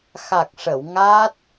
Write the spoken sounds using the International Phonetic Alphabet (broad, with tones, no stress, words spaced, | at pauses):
xa˨˩k̚ʂə˨˩˨w ŋaː˦˥t̚